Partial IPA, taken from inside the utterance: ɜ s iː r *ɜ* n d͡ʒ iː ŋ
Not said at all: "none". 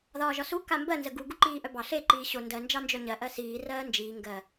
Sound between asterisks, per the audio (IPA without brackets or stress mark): ɜː